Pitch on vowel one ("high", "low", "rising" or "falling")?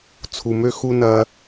low